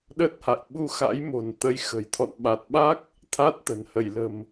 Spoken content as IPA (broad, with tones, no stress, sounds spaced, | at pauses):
ɗ ə˦˥ t̚ h a̰˧˨ j ɓ u˧ x a̰˧˥ j m o̤˨˩ n t̪ ə˨˦ j x ə̤˨˩ j t̪ʰ ɔ̰˧˨ n ɓ a˨˩ t̚ ɓ a˦˥ k̚ | t̪ʰ a˦˥ t̚ t̪ ə̤˨˩ n h ə˧˩ j l ə̤˨˩ m